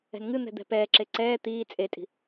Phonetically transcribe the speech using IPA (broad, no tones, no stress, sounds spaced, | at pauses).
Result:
ɛ̤ n ŋ ɨ n̪ ɛ̤ d̪ ɛ̤ p ɛː ǁ e ǀ ɛː t̪ iː t͡sʼ e tʼ i̤